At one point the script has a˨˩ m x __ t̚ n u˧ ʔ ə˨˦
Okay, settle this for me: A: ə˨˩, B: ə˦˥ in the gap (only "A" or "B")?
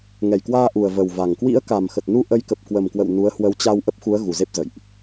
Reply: A